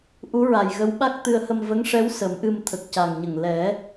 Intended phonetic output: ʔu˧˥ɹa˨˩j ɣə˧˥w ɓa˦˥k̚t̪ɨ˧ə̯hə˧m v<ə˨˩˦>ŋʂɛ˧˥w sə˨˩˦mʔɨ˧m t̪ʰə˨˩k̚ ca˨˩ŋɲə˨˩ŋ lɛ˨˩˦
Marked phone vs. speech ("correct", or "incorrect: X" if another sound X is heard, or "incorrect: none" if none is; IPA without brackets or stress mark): incorrect: ə˧˥